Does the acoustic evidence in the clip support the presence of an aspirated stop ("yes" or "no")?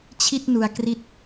yes